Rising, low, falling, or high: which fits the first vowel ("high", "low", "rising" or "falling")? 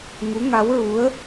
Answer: rising